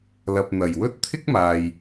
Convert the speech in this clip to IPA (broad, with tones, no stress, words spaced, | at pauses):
lɐ˨p̚n̪ɐ˨˩jwɵ˥t̚ t̪ʰɪ˥k̚maː˨j